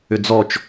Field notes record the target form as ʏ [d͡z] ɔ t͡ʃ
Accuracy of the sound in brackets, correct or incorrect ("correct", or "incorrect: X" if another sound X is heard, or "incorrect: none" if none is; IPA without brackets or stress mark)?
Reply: correct